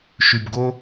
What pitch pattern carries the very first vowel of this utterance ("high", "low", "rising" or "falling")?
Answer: low